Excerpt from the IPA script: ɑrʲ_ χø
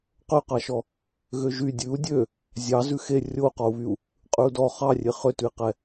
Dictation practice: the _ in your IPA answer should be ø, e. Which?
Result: e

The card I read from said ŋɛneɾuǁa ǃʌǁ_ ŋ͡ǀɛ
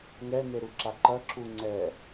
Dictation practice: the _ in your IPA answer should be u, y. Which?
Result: u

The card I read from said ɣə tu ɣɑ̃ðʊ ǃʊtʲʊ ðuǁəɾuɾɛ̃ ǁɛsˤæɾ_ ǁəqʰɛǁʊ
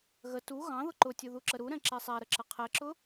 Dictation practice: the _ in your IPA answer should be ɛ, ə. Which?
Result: ə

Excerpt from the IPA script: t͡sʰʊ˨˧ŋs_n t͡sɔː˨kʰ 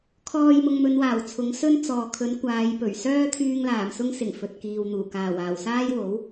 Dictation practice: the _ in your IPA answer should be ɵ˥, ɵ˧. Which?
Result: ɵ˥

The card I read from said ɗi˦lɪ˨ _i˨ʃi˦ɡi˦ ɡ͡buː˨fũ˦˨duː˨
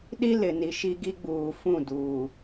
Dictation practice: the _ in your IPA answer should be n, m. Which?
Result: n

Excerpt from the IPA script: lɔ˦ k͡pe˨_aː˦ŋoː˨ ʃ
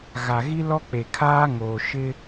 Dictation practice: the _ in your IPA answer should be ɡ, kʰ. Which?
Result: kʰ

